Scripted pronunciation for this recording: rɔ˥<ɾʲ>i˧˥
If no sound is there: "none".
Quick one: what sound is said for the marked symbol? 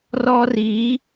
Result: r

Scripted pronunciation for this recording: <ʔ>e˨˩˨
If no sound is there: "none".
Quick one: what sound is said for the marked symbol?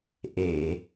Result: ʔ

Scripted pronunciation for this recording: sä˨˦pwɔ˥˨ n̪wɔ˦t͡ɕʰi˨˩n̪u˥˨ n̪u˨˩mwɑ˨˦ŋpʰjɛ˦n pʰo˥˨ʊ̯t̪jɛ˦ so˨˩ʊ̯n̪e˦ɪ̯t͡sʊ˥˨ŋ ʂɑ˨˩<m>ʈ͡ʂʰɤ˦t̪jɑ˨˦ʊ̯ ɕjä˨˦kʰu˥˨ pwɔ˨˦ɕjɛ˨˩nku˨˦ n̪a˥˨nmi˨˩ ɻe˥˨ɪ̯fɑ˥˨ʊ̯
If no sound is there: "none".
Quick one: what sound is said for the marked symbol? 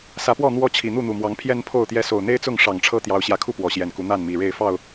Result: ŋ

